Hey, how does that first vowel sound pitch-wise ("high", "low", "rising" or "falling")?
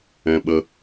high